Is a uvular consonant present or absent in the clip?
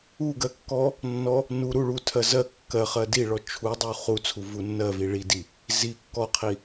present